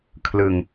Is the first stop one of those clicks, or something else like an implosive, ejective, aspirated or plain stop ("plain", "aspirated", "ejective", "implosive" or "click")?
aspirated